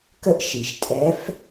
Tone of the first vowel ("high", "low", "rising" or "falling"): high